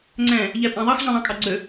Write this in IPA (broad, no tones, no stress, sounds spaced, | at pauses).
ŋ͡ǀ ɛ̃ | ʎ ɛ pʼ ã ðˤ ɑ x ʑ ɑ̃ ðˤ ɑ̃ kʼ ɑ ɡ͡ǀ ø